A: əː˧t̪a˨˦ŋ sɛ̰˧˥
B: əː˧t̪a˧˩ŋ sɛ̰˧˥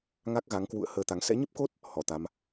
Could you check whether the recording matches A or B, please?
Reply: A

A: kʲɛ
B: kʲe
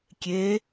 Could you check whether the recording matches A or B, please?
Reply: B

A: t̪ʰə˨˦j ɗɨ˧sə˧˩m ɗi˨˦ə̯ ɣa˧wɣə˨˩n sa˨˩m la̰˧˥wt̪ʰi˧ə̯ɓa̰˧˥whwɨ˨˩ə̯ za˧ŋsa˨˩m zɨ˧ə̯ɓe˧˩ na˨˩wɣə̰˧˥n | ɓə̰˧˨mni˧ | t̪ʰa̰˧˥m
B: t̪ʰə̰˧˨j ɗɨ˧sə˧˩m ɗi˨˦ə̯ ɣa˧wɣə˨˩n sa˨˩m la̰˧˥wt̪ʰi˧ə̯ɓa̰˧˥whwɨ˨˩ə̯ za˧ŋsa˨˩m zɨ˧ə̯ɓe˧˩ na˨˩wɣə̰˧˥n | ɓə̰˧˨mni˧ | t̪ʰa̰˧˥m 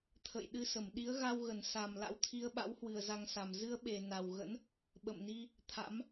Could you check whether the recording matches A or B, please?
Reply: B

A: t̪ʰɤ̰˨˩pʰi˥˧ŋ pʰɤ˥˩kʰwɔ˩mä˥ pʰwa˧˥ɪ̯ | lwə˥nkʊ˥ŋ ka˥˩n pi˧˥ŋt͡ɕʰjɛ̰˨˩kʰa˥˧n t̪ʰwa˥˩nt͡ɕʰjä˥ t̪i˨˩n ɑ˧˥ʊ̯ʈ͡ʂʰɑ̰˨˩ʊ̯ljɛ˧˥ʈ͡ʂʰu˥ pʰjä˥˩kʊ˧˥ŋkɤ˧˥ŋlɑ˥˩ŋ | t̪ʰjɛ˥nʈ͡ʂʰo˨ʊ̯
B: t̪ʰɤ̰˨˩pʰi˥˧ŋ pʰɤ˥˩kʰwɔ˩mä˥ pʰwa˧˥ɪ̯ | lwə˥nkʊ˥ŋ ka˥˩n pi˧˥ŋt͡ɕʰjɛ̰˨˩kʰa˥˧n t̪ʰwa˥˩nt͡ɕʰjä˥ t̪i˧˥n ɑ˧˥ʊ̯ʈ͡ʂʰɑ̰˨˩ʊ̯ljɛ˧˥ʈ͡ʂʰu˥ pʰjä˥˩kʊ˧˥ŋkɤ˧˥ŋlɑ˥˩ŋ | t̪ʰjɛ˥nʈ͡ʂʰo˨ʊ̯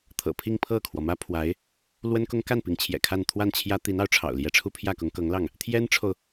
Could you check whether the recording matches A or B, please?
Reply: B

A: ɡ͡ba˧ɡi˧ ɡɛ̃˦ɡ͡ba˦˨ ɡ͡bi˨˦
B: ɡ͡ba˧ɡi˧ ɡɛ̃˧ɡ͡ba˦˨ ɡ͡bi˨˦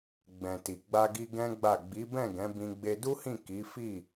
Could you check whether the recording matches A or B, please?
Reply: A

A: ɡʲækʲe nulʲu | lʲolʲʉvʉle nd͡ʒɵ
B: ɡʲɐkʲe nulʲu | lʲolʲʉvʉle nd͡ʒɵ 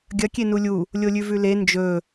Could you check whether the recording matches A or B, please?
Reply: B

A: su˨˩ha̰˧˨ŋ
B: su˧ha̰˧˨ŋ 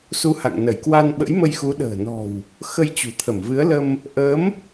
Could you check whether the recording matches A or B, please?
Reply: B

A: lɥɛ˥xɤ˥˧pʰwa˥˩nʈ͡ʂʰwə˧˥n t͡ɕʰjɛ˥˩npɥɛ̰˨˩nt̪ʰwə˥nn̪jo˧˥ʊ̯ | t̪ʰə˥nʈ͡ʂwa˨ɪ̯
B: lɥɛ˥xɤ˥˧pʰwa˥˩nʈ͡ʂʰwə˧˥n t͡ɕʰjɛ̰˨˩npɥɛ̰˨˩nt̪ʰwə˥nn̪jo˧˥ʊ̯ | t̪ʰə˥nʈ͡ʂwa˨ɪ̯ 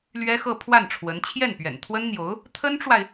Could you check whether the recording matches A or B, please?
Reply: A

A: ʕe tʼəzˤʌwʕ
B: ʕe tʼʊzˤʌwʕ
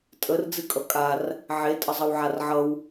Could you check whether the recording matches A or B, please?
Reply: A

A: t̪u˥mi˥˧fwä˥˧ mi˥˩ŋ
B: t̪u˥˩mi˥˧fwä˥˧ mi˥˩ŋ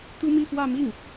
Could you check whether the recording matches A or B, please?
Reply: A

